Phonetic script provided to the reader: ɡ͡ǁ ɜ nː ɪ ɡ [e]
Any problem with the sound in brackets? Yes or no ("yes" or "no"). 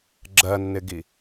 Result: yes